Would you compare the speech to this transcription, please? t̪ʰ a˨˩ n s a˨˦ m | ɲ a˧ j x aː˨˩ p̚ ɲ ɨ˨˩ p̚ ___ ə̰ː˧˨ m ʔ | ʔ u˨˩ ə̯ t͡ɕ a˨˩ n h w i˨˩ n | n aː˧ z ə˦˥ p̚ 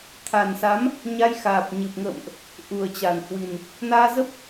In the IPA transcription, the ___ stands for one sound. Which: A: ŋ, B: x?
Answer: A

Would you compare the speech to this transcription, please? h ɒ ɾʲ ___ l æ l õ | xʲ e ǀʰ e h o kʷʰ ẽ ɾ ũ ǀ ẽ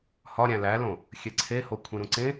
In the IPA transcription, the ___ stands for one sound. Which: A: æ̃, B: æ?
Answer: A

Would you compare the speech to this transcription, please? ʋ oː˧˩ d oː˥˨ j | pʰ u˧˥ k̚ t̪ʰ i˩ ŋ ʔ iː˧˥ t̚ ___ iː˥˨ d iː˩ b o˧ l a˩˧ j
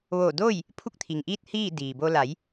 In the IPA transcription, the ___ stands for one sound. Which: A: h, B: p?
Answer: A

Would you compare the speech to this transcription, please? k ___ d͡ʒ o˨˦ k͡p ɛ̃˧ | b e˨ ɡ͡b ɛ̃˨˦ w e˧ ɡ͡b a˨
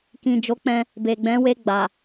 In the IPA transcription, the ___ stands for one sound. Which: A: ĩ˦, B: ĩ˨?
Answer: B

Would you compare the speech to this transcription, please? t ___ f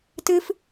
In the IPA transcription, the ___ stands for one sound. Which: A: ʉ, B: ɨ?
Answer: B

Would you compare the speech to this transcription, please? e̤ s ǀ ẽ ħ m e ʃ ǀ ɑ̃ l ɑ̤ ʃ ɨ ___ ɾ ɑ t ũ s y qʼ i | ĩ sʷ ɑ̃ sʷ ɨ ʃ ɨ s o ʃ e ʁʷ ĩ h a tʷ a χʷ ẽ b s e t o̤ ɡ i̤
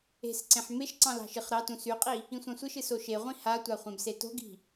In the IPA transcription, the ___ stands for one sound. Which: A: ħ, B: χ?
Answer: B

